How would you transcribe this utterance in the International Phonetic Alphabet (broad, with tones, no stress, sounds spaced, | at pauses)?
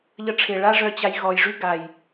ʎ ə˧ ʈ͡ʂʰ e˨ ɭ a˦ ʐ œ˧ t͡ɕ a˧ j ɣ ɔ˨ j ʐ y˦ ɡ a˨ j